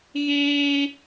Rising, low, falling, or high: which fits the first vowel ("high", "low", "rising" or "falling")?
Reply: high